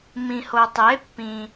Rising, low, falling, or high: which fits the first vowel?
low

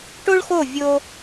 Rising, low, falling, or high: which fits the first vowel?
high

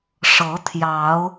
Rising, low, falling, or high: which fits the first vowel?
rising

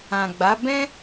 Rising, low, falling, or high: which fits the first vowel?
low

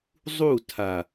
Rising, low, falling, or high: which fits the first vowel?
falling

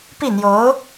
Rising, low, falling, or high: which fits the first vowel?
falling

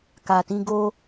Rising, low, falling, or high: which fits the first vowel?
low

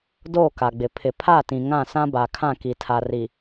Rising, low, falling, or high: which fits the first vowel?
falling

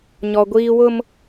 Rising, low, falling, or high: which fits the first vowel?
high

